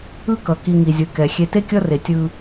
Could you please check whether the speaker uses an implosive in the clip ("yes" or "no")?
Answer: no